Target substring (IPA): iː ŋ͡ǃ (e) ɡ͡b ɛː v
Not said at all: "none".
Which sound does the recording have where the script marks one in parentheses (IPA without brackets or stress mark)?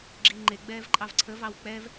e